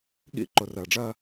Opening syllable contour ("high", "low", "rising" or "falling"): high